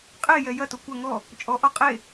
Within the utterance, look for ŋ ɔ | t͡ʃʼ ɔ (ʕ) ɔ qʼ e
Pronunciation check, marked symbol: incorrect: ʔ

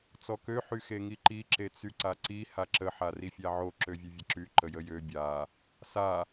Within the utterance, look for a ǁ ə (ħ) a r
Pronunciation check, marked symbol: correct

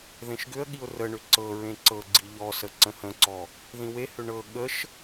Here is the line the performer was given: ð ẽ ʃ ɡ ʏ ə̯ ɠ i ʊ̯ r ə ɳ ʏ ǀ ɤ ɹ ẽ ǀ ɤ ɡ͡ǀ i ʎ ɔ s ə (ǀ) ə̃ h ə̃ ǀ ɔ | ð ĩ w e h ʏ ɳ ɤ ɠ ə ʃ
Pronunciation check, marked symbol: correct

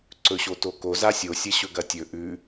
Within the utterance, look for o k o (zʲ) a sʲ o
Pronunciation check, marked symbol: incorrect: z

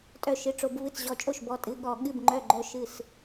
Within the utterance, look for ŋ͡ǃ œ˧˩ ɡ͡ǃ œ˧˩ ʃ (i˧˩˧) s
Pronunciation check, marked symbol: incorrect: ɨ˧˩˧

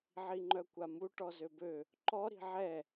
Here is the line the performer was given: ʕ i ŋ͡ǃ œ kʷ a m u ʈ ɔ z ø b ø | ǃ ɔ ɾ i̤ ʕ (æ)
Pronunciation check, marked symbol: incorrect: ɛ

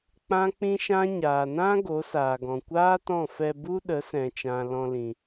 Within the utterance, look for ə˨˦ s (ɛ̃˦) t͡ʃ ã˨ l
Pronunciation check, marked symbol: incorrect: ɛ̃˨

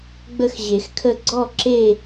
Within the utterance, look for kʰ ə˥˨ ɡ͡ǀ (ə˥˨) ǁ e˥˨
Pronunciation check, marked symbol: incorrect: ɔ˥˨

